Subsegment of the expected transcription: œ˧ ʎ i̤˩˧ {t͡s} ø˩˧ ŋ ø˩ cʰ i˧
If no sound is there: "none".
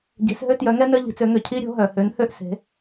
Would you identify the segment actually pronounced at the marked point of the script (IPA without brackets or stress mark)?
t͡s